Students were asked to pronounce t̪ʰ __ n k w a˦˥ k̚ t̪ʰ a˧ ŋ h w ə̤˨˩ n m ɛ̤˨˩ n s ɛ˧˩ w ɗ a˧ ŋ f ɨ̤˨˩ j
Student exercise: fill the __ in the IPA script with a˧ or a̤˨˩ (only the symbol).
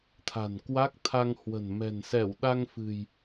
a̤˨˩